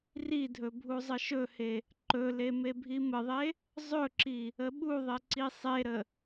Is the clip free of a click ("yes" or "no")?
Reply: no